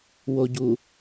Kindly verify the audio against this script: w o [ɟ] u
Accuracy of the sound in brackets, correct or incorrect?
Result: correct